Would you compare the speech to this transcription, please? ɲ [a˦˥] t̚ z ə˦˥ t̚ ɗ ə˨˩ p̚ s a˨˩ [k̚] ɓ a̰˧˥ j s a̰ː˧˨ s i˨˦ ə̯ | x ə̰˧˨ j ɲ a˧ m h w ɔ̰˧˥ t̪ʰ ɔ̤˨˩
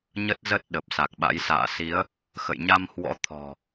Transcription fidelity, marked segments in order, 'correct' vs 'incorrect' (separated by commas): incorrect, correct